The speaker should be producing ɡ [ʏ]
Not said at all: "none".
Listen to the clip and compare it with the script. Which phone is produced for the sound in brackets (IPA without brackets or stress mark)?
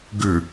ʏ